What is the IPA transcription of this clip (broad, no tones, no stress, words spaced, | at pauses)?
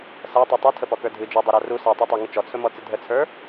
sætˤu tˤɵtʰəpɔkə˞ dʱɨ d͡ʒodˤɨɾa ru satˤotˤæŋɨ t͡ʃɔt͡sʰɵmɔt͡sɨ dʱət͡sʰə˞